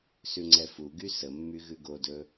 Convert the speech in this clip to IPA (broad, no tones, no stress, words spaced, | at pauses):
sʉŋ͡ǀɛfuɡy səmːy ɣʉɡodɵ